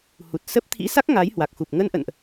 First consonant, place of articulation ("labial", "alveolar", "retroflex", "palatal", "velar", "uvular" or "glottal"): glottal